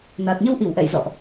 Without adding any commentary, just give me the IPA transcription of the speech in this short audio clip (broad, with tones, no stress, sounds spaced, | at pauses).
n aː˨˩ t̚ ɲ ə˧ w ʔ i˧˩ w ʔ ɛ̰˧˨ j z ɔ̰˧˨ ʔ